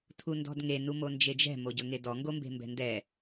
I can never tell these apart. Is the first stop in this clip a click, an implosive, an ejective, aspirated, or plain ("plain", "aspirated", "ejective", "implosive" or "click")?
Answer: aspirated